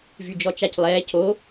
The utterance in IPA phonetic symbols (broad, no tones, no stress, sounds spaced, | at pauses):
v y d͡ʒ ɔ t͡ʃ a c lˠ ɛː c o